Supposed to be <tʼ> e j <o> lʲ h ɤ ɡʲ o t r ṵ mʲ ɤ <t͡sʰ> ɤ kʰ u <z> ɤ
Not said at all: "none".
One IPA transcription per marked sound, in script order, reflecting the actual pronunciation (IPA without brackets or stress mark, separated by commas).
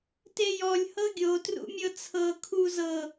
t, ɔ, t͡sʰ, z